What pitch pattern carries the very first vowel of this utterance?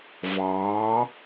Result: rising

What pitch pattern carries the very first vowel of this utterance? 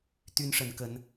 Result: high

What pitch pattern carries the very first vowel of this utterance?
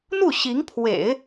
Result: falling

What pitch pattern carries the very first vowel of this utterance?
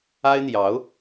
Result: high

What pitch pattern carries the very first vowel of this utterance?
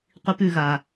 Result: high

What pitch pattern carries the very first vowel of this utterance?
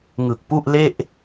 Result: low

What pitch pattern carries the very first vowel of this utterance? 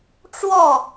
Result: falling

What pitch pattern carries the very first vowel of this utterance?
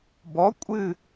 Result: rising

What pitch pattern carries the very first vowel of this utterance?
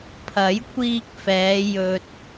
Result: rising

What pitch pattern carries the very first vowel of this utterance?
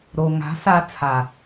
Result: low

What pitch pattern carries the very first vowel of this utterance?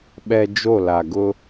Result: low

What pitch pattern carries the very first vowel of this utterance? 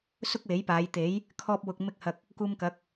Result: high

